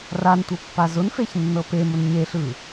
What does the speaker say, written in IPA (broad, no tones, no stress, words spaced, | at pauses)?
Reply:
rantʷɤpːa zʊnfeçnːɤ pemʊn ɲeɬɯ